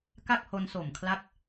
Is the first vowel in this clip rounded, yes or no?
no